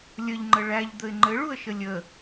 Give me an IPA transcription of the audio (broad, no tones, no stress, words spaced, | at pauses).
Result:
lʲəʎŋ͡ǃə ɭæʎd̪əɪ̯ ŋ͡ǃɘɭuə̯ʃə lʲə